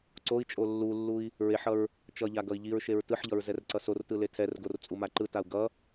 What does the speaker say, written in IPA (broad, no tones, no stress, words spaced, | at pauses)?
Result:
ǀoi̯t͡ʃʼo lːulːui̯ | ɹeħʌɹ | t͡ʃʌʎa ɡʌi̯ʎiɹʃeɹ tɯħʎʌɹ zɛrǀʌsortɯ letʰɛrɡor t͡sʼumaǃɯtau̯ ɡʌ